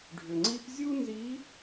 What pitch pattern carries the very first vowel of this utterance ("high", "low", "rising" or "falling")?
low